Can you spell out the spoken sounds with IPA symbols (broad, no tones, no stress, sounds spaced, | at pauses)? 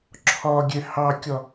ǁʰ ɒ ɡʲ ɛ h ɑ kʲ ɒ